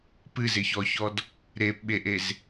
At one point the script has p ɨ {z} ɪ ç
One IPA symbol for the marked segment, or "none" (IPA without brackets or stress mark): z